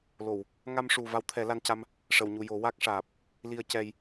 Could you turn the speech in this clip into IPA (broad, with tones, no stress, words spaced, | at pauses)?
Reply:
lo˨˩˨w | ŋa˧mʂu˨˩ va˧˥wt̪ʰɛ˨˩˦ la˧nca˧m | ʂə˨˩˨wɲu˨˩ jo˨˩˦wa˦˥k̚ʂaː˨˩p̚ | li˧ə̯cɛ˧j